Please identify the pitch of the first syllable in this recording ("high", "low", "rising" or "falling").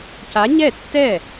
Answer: rising